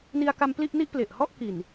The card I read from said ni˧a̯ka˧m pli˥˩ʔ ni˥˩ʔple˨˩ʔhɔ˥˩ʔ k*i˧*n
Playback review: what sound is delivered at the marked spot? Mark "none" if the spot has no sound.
i˨˩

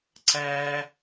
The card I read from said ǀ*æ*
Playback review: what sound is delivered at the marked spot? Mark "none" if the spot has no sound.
æː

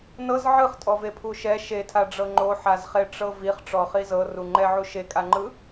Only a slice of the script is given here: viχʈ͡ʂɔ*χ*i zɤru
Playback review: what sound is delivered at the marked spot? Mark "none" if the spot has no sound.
χ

